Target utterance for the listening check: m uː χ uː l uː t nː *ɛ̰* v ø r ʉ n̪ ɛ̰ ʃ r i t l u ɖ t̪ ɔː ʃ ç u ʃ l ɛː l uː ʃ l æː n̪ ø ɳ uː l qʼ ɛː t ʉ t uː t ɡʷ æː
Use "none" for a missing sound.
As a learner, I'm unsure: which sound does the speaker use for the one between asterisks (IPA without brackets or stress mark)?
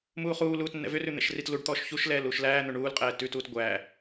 ɛ̰